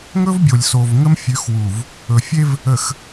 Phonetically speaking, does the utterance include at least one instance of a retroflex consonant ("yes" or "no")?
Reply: no